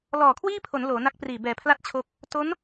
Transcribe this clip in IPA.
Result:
lɔː˨˩kʰwiː˥˩pʰo˩˦n loː˩˦na˦˥k̚priː˨˩ bɛː˩˦pʰla˦˥t̚ t͡ɕʰo˦˥k̚ | to˦˥n

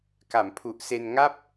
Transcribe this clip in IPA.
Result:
ka˩˦mpʰu˨˩ʔse˧n ŋa˥˩p̚

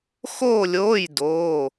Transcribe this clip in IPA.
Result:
xoː˥˧lʲoː˧˥˧j doː˧˥˧

